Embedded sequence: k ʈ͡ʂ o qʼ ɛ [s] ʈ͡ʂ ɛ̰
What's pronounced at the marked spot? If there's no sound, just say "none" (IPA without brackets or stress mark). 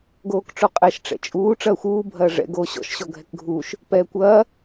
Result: ʃ